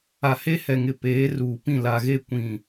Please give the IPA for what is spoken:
a˨he˦ hɛ˨ŋɪ˨ peː˨˦ruː˨pĩ˦˨ la˨ɣe˦˨ kʷĩ˨

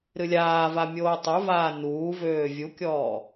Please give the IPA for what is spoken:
ɾɨlʲaːva mʲoːtˤuvaː nuːvøː vʲukʲɔː

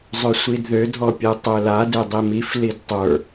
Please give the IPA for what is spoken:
zˤøsʷidðø dʱɔpʲɛtˤøla dedˤimif lidtˤə˞

